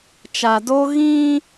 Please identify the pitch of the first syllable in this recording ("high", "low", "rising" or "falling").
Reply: low